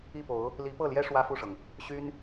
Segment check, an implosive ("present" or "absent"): absent